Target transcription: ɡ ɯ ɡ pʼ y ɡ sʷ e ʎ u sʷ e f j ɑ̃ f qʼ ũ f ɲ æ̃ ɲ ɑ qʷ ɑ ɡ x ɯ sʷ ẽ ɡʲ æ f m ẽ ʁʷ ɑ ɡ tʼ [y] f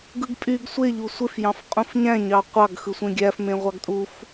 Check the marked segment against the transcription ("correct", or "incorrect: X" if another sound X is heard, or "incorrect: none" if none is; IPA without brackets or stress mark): incorrect: u